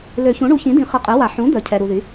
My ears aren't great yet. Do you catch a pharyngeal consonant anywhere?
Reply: yes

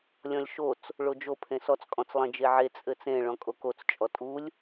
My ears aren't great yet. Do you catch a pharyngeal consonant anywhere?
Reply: yes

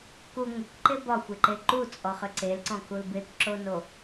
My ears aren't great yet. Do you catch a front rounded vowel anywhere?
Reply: yes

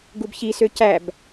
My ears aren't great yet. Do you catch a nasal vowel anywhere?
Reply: no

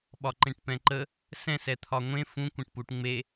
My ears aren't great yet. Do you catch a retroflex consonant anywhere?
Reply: yes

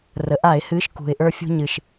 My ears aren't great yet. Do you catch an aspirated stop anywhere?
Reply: no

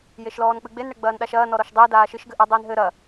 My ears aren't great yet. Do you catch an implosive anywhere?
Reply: yes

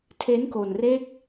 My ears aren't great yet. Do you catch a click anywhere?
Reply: no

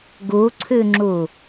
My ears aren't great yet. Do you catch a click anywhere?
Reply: yes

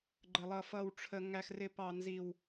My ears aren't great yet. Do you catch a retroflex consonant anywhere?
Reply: yes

